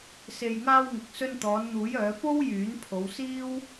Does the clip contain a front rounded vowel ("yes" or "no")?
yes